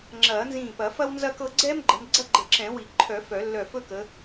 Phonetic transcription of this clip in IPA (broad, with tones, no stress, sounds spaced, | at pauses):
ŋ͡ǁ ɐː˨˩˦ n z ĩː˧˩ p ɐ˨˩˦ f ɐ˥ w n z ɐ˥˧ k ɤ˥˧ ɡ͡ǀ ɛː˥ m ɡ͡ǃ ə˨˦ m ɡ͡ǀ ɐ˥˧ ɡ͡ǃ ə˨˩˦ ǁ ɛ̃˨˩˦ w i˨˩˦ ǃʰ œ˨˩˦ f œ˨˩˦ lː œ˧˩ f ɵ˥˧ k ə˨˦